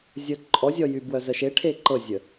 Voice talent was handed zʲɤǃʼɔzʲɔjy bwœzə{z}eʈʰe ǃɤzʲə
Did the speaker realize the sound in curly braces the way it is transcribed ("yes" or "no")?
no